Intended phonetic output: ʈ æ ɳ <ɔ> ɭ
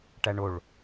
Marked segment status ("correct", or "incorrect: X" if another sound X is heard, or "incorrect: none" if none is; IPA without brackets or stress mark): incorrect: o